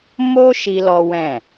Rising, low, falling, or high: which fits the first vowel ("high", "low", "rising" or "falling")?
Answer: high